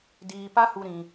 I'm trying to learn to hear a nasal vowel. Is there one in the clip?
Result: yes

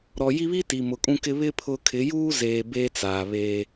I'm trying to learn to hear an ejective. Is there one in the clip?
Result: yes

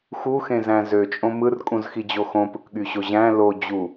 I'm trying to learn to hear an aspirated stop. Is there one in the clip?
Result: no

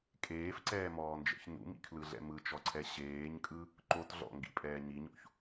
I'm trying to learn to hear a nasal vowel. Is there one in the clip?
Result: no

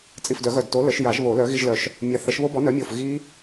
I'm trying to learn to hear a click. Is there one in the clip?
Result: no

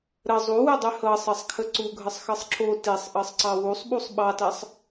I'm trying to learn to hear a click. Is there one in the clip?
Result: yes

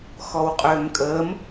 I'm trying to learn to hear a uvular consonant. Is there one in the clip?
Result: yes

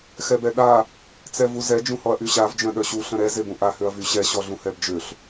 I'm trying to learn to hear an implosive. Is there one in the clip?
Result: yes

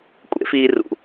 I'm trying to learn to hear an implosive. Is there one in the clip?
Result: no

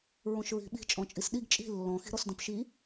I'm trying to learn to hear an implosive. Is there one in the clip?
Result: yes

